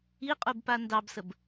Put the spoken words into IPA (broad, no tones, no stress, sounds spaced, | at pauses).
i qʼ u b p a n d ɑ b s ə b